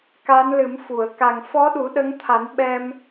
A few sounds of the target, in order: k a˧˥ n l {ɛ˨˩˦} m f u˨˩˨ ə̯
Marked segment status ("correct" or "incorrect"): incorrect